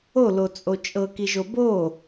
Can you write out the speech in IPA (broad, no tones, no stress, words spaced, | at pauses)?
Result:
olot͡sʼo t͡ʃʼɤkiʒo bo